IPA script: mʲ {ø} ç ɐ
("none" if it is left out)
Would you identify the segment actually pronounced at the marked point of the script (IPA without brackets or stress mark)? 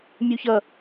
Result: u